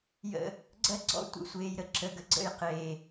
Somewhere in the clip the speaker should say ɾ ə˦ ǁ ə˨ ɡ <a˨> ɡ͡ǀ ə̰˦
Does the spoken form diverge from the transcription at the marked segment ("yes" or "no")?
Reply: yes